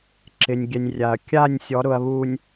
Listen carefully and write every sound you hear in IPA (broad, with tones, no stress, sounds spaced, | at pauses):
ǁ ɪ˨ nʲ ɡʲ ɛ˨ nʲ rʲ a˨ ɐ̯ kʲ a˦˨ nʲ sʲ ɔ˨˦ ɾ ʊ˨ ɐ̯ β u˨ nʲ